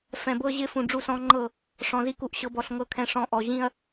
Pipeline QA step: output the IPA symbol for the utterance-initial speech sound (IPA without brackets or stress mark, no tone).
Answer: f